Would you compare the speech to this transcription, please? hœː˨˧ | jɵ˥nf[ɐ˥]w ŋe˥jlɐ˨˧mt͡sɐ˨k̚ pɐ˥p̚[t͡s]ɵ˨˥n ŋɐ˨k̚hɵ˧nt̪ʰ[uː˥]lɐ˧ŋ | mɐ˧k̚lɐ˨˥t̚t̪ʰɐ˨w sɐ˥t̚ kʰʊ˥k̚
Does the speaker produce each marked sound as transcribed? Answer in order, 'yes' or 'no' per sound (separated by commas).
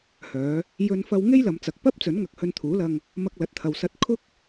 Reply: yes, yes, no